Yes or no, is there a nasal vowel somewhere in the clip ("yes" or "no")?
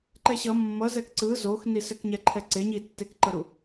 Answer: no